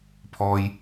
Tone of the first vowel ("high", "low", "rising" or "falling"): low